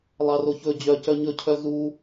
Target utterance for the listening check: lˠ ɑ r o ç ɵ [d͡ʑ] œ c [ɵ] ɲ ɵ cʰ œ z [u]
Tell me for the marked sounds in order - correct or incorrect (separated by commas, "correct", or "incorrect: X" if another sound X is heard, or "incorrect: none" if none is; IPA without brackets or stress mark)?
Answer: correct, incorrect: œ, correct